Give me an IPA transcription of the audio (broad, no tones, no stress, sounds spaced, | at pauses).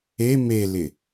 e m e l ɪ